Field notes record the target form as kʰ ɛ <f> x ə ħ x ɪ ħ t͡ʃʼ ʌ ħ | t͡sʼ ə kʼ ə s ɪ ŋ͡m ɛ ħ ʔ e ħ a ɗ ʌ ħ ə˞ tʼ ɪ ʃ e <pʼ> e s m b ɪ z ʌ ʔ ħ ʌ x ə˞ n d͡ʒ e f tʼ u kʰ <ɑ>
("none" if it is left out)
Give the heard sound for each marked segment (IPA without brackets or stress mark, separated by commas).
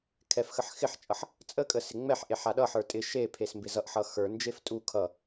f, pʰ, ʌ